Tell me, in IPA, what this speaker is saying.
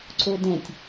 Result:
ǀodɛ̃tʲ

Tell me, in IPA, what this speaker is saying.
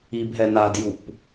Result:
ibɦɛ nadjup

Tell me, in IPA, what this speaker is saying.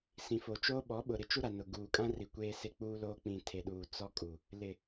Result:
sĩ˨fo˨t͡ʃoː˦ ɓɔ˨˦ɓʊ˨ ɾɪ˦t͡ʃu˦ɾa˨ nʊ˨ ɡuː˨kʼã˦ri˨ kʷeː˦se˦k͡puː˦loː˦ k͡pĩ˨tʰe˨ɗuː˨ t͡sɔ˦kʼu˨ | lɪ˨

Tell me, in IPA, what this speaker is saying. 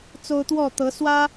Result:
t͡so˦ʊ̯t̪wɔ˥˨t̪ɤ˨˦swä˦

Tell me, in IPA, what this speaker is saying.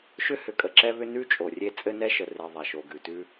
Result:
ʃʏ˦hʏ˨kʼə˨ ǁɛ˦βʏ˦ nʉ˦ t͡ʃʼo˨rʲe˦ t͡sʼɘ˦nɛ˦ʃə˨ re˨ ðˤa˨ʃo˨ɡʉ˨tʉ˦

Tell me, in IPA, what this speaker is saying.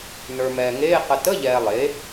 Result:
nə˞˨mɛː˨ŋeː˧˥˧ qə˨tə˧˥˧ ʎɛː˨ lˠe˩˥

